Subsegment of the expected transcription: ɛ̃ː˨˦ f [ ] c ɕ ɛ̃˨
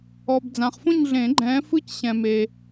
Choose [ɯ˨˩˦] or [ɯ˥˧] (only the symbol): ɯ˥˧